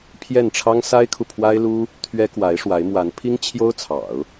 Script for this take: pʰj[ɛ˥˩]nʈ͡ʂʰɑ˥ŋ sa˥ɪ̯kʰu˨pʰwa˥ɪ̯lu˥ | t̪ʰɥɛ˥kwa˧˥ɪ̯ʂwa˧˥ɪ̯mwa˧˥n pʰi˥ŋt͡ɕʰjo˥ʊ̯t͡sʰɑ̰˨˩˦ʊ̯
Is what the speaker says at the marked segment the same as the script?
yes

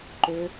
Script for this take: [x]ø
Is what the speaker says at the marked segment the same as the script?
no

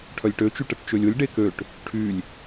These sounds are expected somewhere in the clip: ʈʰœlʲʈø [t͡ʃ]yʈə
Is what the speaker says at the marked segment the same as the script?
yes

